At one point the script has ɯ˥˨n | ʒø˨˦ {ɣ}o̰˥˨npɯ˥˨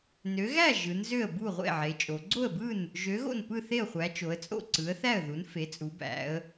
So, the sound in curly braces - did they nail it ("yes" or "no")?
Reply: yes